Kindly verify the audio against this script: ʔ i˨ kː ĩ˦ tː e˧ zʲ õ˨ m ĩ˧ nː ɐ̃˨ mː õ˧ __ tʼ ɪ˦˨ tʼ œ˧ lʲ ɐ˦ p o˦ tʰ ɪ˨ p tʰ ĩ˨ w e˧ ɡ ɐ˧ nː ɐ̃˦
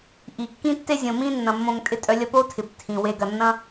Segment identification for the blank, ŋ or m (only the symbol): ŋ